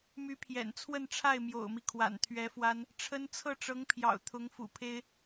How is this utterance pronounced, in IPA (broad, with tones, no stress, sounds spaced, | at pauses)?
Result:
m y˧˥ pʰ j ɛ̰˨˩ n t͡sʰ w ə˥˧ n ʈ͡ʂʰ a˥˩ ɪ̯ m j o̰˨˩ ʊ̯ m i˦ kʰ w a̰˨˩ n t̪ʰ ɥ ɛ˧˥ f w a˥ n | ʈ͡ʂʰ ə˥ n t͡sʰ ɤ˥˩ ʈ͡ʂ ɤ˧˥ ŋ pʰ j ɑ̰˨˩ ʊ̯ t̪ʰ ʊ˧˥ ŋ f ṵ˨˩ pʰ e˥ ɪ̯